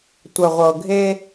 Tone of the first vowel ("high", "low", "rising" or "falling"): low